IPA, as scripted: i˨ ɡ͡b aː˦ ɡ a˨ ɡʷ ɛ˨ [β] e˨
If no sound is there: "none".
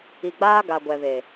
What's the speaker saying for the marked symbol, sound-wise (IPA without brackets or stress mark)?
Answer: β